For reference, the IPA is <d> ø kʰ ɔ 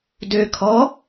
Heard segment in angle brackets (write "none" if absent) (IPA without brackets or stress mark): d